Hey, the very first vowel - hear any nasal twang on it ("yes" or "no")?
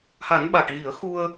no